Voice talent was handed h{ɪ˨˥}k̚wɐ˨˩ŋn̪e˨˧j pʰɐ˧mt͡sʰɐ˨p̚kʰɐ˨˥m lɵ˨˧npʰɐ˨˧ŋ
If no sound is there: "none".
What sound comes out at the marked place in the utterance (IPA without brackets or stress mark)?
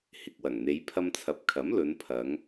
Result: ɪ˨